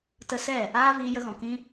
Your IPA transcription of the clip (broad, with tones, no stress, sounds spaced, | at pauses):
t ə˧ s ɛ˦˨ | aː˦ v iː˧ j ə˧ ɣ ɔ̃˨ k ĩ˧